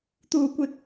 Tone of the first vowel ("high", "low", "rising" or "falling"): high